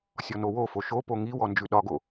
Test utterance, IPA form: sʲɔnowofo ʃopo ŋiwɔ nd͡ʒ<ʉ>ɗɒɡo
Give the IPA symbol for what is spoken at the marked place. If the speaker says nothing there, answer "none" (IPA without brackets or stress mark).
ʉ